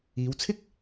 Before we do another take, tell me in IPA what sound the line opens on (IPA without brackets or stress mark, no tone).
iː